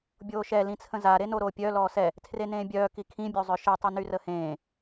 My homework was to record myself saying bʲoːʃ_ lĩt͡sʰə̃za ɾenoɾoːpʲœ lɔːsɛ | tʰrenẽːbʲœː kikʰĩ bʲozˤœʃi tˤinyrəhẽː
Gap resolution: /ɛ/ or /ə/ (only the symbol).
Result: ɛ